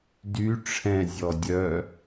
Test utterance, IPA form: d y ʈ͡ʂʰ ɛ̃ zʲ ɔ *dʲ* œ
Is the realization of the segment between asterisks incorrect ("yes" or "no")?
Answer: no